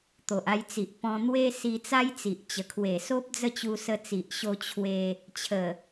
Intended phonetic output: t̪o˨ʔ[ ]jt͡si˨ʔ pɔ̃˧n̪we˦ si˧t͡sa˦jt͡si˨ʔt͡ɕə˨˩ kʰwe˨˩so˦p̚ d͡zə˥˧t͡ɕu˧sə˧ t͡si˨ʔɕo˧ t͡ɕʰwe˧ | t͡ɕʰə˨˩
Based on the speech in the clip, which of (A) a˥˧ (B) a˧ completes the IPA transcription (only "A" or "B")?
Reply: B